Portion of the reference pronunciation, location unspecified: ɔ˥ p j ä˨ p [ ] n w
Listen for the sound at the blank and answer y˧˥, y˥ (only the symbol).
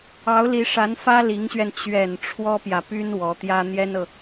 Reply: y˥